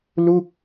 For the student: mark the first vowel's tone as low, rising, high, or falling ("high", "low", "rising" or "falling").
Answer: falling